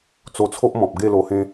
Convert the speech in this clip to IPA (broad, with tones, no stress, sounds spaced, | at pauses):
t͡s o˧ t͡sʰ o˦ ʔ m ɔ̃˨ p̚ ɡ e˥˧ l o˧ h ẽ˦